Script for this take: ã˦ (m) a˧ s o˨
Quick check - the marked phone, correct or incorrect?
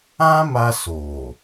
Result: correct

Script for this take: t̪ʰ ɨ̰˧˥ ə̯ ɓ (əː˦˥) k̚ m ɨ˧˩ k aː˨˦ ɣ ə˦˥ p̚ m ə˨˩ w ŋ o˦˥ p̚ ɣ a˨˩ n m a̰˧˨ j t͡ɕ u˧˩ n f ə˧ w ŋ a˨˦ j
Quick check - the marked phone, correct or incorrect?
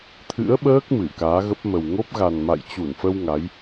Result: correct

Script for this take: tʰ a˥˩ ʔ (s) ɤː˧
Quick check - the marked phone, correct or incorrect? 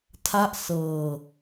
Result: correct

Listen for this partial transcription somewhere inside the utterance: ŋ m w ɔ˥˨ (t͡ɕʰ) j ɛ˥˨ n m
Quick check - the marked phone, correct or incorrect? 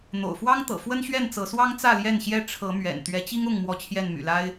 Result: correct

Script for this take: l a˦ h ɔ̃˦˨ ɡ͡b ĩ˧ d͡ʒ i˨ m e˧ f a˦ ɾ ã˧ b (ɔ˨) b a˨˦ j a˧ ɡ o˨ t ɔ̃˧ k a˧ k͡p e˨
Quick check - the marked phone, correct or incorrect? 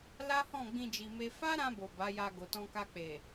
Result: incorrect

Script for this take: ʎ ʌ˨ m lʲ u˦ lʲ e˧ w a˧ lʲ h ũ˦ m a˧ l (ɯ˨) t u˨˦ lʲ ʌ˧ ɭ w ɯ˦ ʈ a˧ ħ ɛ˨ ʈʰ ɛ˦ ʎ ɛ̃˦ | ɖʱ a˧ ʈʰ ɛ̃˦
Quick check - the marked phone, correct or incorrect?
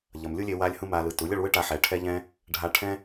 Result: correct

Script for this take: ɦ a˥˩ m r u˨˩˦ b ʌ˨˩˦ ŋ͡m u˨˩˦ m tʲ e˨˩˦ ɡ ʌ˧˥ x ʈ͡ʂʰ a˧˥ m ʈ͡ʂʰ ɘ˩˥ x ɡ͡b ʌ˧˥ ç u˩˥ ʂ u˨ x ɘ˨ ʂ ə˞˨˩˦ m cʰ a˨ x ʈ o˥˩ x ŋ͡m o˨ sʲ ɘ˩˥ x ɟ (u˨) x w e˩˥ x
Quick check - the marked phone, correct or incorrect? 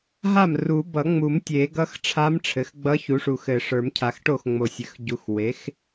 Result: correct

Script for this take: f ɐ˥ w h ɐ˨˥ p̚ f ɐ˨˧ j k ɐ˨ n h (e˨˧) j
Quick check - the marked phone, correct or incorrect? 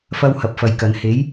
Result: incorrect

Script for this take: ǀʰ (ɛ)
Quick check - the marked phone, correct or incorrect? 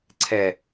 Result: correct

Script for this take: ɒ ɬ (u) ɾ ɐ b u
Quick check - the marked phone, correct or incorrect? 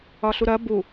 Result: correct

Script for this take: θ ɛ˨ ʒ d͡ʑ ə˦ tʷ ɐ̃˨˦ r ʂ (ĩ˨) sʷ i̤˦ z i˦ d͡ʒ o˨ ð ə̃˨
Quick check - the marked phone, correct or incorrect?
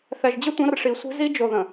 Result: incorrect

